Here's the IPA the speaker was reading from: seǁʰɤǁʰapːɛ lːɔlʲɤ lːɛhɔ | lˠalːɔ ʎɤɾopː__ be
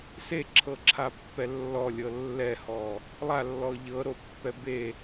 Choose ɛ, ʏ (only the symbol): ɛ